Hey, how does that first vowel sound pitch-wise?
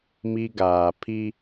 high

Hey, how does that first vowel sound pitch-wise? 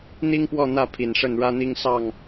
high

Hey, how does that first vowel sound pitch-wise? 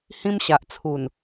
high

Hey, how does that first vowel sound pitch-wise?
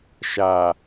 low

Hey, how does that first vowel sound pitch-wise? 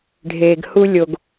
low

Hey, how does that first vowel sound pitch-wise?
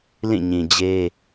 falling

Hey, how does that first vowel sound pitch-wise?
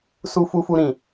high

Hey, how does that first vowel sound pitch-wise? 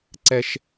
high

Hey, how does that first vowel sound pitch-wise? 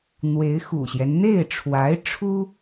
rising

